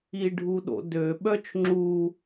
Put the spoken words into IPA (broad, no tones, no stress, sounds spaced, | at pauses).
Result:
i ɖʱ u ɗ o̰ d ø ɓ œ t͡ʃ ŋ͡ǁ u